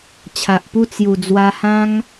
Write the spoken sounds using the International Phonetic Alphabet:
t͡ɕʰ a˨ ʔ p u˥˧ t͡s j u˨˩ d͡z w a˧ h ã˦ ŋ

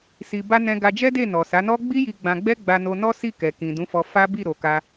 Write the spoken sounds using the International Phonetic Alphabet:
s i˧ b a˧ n ɛ̃˧ ɡ a˧ d͡ʒ ɛ˦ d e˦˨ n ɔ˨ s a˨˦ n ɔ˦ ɡ͡b i˦ j i˧ ɡ͡b ã˧ ɡ͡b ɛ˦ ɡ͡b a˧ n o˧ n ɔ˦ s i˦˨ k ɛ˨ k ĩ˨ d ũ˨˦ f ɔ˧ f a˦ b i˦˨ ɾ o˨ k a˧

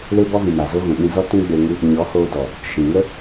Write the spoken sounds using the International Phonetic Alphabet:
l e˦ b ɔ˦ v ĩ˨ m a˨ z o˦ ɣ ũ˨ ɓ ĩ˧ z ɔ˦ t ũ˦ ɡ͡b e˧ ŋ ɨ˦ | ɲ ɔ˨˦ h oː˧ d ɔ˨ | ʃ ĩ˨ ŋ ə˦

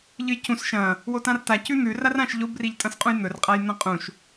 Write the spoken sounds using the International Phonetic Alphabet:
ʎ ɨ j c ũ s ʃ ɐ̃ | w o t ã r t a c ʉ n̪ ʉ r a r ã ʃ ʎ o b r i ʎ tʼ ɐ̃ s qʼ ũ j n̪ ɵ r qʼ a j n̪ ɐ̃ qʼ ũ ʃ

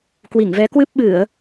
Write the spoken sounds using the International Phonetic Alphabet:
k w i˧˩ ŋ v ɛ˨˦ k w ɨ˦˥ p̚ ɓ ɨ˧˩˨ ə̯

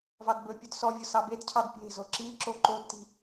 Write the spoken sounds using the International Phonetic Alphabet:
v ɑ d b ɵ pʲ ɵ d s ɔ vʲ ʊ s ɑ b e d cʰ ɑ d pʲ e̤ z o ǁ i ǁ o ǃ o d t i̤

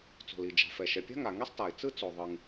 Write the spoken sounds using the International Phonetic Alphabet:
t͡s o̤˩ l i˩ d͡ʒ a̤˩ f ɛ˩ ʃ ɛ˩ pʲ a̤˥ ŋ a˩ ŋ i˥ sˤ t a˩ ɪ̯ t͡s ɯ˥ t͡s o˩ ðˤ ɯ˩ ŋ

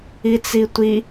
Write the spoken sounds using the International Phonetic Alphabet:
i t͡s i tʷ i

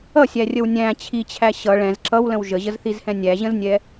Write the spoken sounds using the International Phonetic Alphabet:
ʌ sʲ æ rʲ ə w nʲ æ̃ t͡ɕʰ i t͡ɕʰ æ ɕ ʌ ɭ ɛ̃ z ǁ ʌ w l ə̃ w ʒ ə ʑ ə z θ i z h ɛ̃ nʲ æ ʑ ə̃ z nʲ ɛ

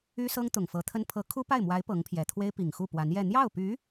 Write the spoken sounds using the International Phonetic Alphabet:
y˥ s ɤ˥ ŋ t̪ ʊ˨˩ ŋ f ɤ˧˥ t̪ʰ ə˥ n pʰ ɤ˧˥ kʰ u˥ p a˥˩ ɪ̯ m w a˧˥ ɪ̯ p ɤ˧˥ ŋ pʰ j ɛ˨˩ t̪ʰ w e˥ ɪ̯ p i˨˩ ŋ x u˥˩ p w a˧˥ n j ɛ˥˧ n̪ j ɑ˥˩ ʊ̯ p y˧˥

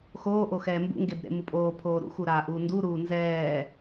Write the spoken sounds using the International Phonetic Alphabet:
x oː ʔ o x ɛː m b ṵ ŋ ɡ e b ɾ ḛ m u pʼ oː pʰ oː ɾ ṵ x u ɾ aː ʔ uː n d u ɾ uː n z ɛː

